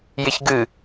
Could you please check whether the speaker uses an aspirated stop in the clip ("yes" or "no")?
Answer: no